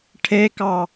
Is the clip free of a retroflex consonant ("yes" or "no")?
no